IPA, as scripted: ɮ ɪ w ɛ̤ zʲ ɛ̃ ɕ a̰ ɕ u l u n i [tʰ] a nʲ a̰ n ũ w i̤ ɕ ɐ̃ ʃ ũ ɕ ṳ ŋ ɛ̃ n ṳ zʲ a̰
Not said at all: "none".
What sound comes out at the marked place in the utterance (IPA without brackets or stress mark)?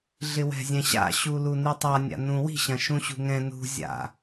tˤ